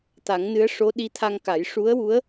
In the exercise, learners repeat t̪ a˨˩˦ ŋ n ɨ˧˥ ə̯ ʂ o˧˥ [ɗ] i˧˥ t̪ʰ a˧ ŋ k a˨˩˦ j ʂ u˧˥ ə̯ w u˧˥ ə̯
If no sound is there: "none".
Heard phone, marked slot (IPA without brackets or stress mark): ɗ